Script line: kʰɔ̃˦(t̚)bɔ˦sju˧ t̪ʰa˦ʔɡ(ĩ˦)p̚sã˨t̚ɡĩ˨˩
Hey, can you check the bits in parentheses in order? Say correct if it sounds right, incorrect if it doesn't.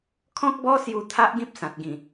incorrect: k̚, correct

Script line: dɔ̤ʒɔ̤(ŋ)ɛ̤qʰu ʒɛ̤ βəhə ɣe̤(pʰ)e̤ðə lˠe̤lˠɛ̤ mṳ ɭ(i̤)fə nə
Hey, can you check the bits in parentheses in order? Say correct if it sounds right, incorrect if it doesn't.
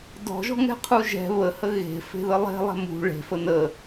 correct, incorrect: f, incorrect: e̤

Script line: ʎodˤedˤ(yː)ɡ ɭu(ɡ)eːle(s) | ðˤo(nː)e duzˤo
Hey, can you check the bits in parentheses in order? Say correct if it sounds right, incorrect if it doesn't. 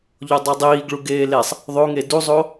incorrect: iː, correct, incorrect: sˤ, incorrect: ŋ

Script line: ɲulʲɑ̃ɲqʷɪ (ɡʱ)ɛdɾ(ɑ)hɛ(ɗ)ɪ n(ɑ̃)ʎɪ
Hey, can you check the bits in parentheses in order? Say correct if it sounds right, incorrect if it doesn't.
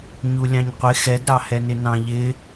incorrect: x, correct, incorrect: n, correct

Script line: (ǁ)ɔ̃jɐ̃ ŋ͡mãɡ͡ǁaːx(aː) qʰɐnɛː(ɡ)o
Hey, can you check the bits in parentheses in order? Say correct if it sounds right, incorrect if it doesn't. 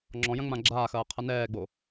incorrect: ŋ͡ǁ, incorrect: ɐː, incorrect: ɡ͡b

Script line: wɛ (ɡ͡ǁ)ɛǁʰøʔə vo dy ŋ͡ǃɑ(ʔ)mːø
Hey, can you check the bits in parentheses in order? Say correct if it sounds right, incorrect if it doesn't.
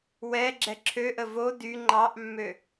correct, correct

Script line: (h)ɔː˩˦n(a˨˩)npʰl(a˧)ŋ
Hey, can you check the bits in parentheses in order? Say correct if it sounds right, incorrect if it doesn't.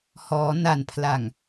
correct, correct, incorrect: a˨˩

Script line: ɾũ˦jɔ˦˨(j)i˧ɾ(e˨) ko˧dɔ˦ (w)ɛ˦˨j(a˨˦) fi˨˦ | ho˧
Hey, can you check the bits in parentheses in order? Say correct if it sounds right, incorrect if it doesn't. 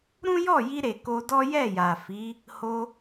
correct, correct, incorrect: j, incorrect: a˨

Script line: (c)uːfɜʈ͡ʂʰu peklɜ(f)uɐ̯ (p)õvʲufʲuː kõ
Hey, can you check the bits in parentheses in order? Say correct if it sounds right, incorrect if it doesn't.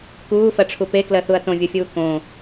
incorrect: k, incorrect: θ, incorrect: t

